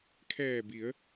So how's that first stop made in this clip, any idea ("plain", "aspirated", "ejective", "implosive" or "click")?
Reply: aspirated